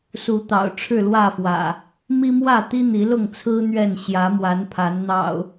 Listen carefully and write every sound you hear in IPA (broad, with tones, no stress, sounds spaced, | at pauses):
s u˨˦ t̪ ɑ̰˨˩ ʊ̯ ʈ͡ʂʰ ɻ̩˥˨ l w ä˥˨ f w ä̰˨˩ | m i˦ m w ä˥˨ t̪ i˦ n̪ i˨˦ l ʊ˥˨ ŋ t͡sʰ ɹ̩˦ n̪ ɥ ɛ˥˨ n ɕ j ä˨˦ m w a˨˦ n pʰ a˨˦ n n̪ ɑ̰˨˩ ʊ̯